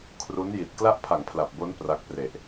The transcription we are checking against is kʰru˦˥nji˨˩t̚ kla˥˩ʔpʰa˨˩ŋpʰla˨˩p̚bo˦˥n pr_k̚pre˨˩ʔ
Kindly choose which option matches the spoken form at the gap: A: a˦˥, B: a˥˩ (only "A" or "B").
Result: A